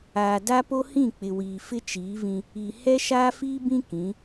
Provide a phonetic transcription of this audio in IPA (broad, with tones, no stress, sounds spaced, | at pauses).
aː˨ d a˦ p o˦ h ĩ˦˨ k͡p ɪ˨ w iː˨ f ɪ˦ t͡ʃ iː˨˦ v ĩ˦ | i˨ h ɛ˦ ʃ aː˦ f iː˦ b ĩ˦ k ĩ˨˦